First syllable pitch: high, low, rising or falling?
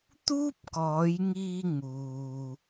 high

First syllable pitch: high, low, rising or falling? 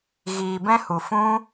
low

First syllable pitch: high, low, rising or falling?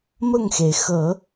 falling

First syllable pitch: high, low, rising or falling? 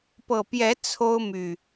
low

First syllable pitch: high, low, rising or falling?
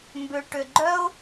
low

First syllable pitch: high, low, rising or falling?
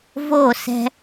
falling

